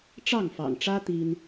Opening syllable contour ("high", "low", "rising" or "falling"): falling